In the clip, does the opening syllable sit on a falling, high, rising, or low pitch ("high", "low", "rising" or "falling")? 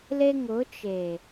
high